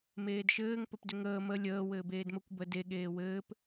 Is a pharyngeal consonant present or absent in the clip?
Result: absent